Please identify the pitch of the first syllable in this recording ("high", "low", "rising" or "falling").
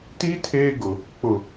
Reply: high